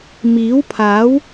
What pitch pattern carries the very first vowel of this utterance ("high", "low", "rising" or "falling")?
rising